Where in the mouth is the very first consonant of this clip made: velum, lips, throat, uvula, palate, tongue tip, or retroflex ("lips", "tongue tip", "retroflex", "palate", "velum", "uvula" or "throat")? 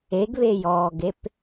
velum